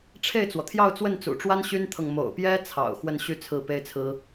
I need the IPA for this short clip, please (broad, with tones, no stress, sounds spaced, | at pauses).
ʈ͡ʂʰ e˥˩ ɪ̯ t͡s w ɔ˩ t̪ʰ j ɑ˥˧ ʊ̯ t͡s w ə˥˩ n t͡s ṵ˨˩ ʈ͡ʂ w a˥ n ɕ y˥ n t̪ʰ ɤ˨ ŋ m o̰˨˩ ʊ̯ p j ɛ˥ t͡sʰ ɑ̰˨˩ ʊ̯ x w ə˥˧ n ɕ y˥˧ t͡sʰ ɹ̩˥˩ p e˥ ɪ̯ t͡sʰ ɹ̩˥